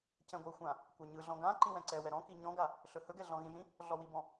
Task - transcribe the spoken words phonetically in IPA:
c ɛ̃ ɡʷ ɯ xʷ ã | kʷ a ɲ ɯ ɮ ɔ̃ ɡ ã ǃ ĩ w ɛ̃ ǀ ɛ w ɛ ɾ ɔ̃ k i ɲ ɔ̃ ɡ a | ɬ ɵ h ɵ ɡ ɛ ɮ ɔ̃ ɣ ĩ ʒ ĩ | ɮ ɔ w i b ɔ̃

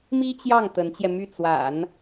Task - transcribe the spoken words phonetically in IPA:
m i˥ t͡ɕ j ɑ˥˩ ŋ t̪ ə˧˥ n t͡ɕ j ɛ˧ m y˥˩ t͡s w a̰˨˩˦ n

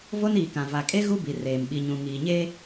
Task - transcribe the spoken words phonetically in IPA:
v o˦ n iː˨ k ã˨ v a˨ kʼ e˦ ɣ u˦ b i˨ r eː˨ m ɓ i˨ ɲ ũ˨ ŋ iː˨ ɲ eː˦

